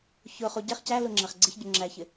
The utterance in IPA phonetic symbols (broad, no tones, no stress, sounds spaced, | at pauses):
ç ʊ χ u ɟ ɛ χ c æ l ʊ ŋ͡ǁ æ χ ɡ͡ǀ ɪ ç ɟ ʊ ŋ͡ǁ æ ç ɪ